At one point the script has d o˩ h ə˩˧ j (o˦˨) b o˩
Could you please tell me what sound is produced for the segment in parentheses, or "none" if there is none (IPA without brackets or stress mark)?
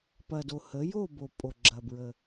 o˦˨